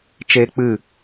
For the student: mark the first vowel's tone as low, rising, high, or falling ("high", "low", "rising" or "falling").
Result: high